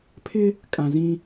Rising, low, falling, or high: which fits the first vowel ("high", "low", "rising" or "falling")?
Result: high